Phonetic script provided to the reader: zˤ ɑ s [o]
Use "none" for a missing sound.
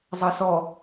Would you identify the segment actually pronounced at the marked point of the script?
ɔ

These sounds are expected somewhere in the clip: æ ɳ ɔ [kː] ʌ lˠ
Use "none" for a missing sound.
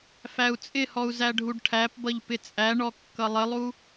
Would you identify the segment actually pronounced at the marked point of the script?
kː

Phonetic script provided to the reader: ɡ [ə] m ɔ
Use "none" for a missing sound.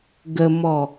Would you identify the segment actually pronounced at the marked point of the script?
ə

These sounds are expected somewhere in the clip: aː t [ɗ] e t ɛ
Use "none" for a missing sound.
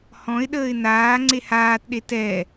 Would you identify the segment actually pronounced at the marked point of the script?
ɗ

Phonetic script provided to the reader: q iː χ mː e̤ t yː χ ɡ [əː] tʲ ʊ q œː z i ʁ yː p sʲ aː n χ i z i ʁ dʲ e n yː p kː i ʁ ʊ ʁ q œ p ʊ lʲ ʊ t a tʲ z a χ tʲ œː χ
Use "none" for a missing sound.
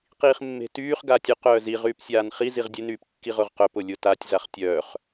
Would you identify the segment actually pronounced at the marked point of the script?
aː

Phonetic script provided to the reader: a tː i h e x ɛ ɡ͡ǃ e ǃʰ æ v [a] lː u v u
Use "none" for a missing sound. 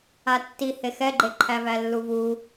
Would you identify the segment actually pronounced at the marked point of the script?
æ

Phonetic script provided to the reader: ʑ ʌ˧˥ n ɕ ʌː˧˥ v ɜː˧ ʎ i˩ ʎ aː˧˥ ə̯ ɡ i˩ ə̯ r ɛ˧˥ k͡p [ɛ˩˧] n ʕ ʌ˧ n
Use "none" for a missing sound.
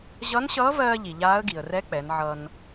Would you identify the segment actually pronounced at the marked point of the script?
ɛ˩˧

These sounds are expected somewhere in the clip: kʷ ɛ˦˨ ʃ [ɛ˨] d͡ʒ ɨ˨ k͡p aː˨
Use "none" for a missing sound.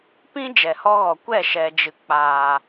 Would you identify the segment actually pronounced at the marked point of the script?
ɛ˨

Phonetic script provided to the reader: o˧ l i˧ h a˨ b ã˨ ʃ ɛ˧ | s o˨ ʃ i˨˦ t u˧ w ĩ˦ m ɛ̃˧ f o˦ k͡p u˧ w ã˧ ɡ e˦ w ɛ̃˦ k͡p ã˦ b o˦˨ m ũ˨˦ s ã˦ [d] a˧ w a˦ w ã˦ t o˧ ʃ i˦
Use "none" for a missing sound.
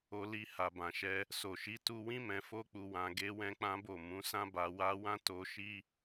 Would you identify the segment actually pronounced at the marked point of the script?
b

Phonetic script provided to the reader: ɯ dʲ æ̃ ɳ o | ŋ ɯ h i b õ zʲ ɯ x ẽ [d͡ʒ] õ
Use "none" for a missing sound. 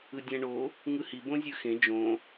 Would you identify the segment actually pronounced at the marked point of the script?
d͡ʒ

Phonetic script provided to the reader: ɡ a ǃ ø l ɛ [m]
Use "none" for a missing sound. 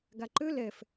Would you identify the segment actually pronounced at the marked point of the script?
f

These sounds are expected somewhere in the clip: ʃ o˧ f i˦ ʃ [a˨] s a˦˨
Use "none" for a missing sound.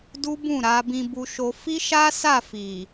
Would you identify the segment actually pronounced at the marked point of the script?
a˦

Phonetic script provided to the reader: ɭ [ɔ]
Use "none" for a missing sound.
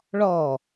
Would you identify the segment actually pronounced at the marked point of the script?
ɔ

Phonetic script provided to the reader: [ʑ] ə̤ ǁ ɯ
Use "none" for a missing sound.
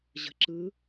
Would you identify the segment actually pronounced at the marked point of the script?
ʑ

